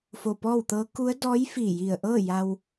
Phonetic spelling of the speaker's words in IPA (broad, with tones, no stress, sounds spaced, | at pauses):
f o˧˩ p ɔː˥˨ w t̪ ɤː˧˥ k u˧˥ ə̯ d ɔː˧˥ j f iː˧˩ j i˧˩ ə̯ ʔ ɤː˥˨ j a˧ w